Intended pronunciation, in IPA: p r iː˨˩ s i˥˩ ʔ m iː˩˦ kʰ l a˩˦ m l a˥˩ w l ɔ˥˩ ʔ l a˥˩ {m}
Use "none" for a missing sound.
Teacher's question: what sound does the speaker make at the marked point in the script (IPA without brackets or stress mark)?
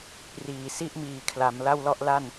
n